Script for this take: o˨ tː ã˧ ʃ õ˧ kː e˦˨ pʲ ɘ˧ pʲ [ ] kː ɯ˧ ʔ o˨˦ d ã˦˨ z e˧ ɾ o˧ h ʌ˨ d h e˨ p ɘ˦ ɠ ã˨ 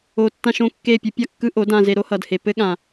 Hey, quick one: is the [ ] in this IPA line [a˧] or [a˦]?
a˦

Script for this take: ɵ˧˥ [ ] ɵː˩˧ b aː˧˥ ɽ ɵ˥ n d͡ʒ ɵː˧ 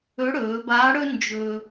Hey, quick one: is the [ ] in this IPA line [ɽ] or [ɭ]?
ɽ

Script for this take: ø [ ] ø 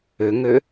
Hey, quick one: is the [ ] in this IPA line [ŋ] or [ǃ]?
ŋ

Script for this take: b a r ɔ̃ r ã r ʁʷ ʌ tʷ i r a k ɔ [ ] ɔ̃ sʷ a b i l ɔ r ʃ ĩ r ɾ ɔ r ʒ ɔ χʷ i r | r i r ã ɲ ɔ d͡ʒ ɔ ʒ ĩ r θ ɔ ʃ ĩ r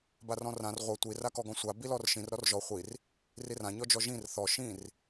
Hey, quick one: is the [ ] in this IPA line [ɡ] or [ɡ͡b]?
ɡ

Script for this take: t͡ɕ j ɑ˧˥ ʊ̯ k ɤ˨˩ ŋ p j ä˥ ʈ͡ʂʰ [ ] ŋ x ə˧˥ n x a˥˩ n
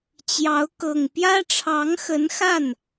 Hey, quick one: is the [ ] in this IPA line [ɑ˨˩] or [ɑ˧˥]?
ɑ˧˥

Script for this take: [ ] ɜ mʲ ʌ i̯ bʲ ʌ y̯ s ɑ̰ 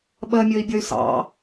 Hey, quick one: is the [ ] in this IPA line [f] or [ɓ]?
ɓ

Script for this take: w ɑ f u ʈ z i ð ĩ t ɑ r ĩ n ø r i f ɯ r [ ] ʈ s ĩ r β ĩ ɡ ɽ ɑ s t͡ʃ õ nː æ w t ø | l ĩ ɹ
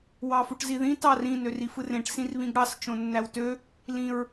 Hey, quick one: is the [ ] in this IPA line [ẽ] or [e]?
ẽ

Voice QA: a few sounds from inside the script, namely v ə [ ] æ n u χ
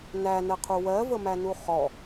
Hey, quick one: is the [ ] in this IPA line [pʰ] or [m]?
m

